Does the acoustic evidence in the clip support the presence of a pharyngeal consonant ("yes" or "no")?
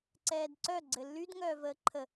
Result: no